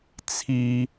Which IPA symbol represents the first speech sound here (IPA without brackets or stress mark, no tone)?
t͡sʰ